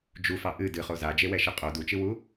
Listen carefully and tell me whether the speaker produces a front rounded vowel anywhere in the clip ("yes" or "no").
no